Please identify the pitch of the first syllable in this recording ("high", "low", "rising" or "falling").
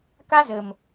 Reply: high